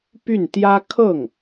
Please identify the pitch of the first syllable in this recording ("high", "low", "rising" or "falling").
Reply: falling